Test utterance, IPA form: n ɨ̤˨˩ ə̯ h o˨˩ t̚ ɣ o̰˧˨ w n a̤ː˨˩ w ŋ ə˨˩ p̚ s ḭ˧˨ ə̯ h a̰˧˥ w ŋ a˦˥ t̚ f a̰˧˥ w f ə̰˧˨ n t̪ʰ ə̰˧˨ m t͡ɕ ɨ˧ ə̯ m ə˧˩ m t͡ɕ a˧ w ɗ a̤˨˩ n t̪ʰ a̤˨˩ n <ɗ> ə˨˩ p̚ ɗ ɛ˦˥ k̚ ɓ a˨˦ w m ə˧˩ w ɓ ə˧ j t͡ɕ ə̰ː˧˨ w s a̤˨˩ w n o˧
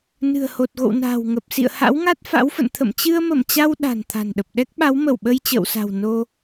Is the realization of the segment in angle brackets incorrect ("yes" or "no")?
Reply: no